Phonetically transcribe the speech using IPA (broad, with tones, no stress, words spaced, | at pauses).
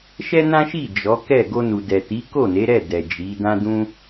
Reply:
ʃɛ˦nã˦ʃi˦˨ d͡ʒɔ˨˦kɛ˦˨ ɡo˧nu˨dɛ˨ ti˨˦ko˦˨ne˨˦ɾɛ˦˨ dɛ˨d͡ʒi˨˦ dã˦dũ˦